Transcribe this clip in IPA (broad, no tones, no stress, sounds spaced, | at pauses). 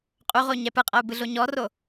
qʼ u ʁ o ɲ ɛ p ɯ qʼ ɤ u̯ b ɯ ɮ o ɲ ɔ r o